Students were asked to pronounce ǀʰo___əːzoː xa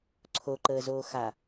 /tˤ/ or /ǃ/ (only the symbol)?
ǃ